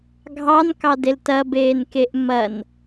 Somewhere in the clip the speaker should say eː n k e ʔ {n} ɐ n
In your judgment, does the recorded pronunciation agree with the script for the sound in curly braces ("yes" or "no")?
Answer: no